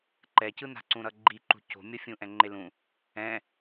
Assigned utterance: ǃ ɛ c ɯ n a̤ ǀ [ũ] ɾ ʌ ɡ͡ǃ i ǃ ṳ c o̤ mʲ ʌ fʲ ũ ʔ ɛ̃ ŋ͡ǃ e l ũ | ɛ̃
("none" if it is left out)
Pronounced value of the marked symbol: ũ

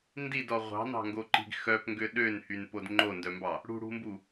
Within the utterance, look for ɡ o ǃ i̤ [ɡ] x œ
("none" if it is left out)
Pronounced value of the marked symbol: ɡ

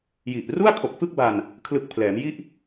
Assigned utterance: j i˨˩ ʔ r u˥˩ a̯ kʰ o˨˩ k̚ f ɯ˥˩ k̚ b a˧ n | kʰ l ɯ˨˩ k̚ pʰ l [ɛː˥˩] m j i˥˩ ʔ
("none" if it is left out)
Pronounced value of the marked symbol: ɛː˩˦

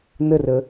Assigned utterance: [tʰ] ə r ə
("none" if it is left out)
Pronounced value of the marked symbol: n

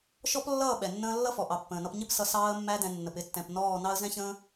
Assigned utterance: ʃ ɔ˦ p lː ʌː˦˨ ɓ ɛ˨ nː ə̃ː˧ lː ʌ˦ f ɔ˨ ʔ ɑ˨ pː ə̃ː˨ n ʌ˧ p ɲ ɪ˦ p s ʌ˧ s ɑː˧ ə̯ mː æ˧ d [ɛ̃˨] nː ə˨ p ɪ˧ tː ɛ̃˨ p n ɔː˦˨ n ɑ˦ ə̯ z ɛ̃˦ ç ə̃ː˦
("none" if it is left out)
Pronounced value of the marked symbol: ɛ̃˨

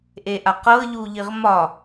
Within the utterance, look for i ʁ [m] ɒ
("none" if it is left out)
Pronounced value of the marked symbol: m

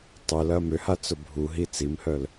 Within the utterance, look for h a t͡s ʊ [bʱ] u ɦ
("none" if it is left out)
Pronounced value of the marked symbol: bʱ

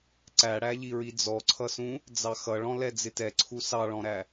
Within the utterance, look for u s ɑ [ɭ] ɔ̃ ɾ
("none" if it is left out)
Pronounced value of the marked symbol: ɭ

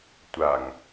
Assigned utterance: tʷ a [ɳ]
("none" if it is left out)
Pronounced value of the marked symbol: ŋ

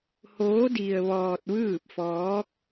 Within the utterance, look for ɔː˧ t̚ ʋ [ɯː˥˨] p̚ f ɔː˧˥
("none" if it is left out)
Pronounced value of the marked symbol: ɯː˥˨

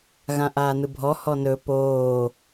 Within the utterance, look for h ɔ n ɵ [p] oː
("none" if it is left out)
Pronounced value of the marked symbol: p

